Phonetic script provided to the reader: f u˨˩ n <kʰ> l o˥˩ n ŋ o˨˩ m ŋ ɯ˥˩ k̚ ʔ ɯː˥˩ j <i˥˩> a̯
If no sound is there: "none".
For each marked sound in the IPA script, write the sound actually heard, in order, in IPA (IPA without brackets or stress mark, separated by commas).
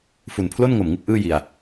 pʰ, i˧